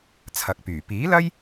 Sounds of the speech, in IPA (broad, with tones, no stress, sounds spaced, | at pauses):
t͡sʰ ɐ˨˥ k̚ p yː˨˩ p iː˨˥ l ɐ˥ j